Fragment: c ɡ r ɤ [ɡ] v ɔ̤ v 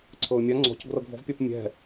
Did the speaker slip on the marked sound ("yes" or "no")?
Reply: no